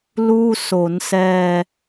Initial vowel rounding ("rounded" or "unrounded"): rounded